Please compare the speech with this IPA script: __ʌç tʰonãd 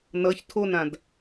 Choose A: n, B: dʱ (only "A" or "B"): A